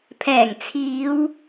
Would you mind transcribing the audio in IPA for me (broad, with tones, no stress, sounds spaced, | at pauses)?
pʰ ɛː˨˩ ŋ t͡sʰ iː˨˧ w